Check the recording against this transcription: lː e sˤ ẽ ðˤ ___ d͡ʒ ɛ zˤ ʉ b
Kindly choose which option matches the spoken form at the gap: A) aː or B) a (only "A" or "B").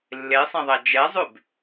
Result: B